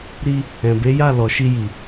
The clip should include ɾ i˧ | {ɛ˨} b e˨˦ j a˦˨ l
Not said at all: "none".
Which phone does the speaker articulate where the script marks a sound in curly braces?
ɛ̃˨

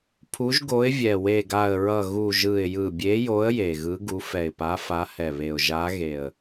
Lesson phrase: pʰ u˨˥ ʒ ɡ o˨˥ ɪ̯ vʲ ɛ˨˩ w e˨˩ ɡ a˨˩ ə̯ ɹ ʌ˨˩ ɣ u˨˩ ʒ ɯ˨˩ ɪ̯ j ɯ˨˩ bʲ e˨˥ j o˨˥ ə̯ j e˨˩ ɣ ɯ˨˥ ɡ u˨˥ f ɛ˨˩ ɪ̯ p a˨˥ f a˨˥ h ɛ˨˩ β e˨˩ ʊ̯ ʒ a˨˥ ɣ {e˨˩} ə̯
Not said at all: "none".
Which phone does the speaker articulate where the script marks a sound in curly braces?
e˨˩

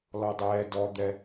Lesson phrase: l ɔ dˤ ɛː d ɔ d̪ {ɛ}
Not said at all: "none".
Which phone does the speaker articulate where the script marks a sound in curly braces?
ɛ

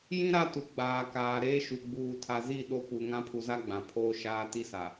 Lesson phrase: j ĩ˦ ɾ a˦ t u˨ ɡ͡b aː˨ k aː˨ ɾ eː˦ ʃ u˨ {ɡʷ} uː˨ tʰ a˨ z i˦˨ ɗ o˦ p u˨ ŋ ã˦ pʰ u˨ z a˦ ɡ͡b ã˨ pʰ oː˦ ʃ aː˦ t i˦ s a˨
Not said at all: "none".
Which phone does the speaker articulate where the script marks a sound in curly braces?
ɡ͡b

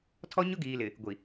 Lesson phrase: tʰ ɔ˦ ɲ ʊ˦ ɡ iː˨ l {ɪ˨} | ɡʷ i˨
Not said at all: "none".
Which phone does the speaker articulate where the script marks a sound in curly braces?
ɪ˨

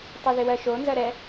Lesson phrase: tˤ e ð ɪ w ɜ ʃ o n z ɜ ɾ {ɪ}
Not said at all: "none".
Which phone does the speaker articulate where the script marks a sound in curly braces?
ɛ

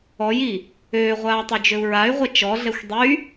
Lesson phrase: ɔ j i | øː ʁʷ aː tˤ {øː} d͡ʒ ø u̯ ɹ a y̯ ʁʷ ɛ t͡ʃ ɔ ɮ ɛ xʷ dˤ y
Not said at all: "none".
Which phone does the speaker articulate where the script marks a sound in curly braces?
ø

